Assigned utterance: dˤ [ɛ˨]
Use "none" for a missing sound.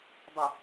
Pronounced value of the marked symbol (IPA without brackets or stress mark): ə˨